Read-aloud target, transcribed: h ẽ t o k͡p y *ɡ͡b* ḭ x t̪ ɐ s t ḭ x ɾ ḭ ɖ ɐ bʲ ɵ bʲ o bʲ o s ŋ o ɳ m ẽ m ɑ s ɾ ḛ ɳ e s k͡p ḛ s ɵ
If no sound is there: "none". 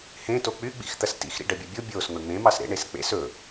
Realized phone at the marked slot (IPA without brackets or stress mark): ɡ͡b